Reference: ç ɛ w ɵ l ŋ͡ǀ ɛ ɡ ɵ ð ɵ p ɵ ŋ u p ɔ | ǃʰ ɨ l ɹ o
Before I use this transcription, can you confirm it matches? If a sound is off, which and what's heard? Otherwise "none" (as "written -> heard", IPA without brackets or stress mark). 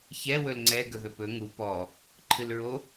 none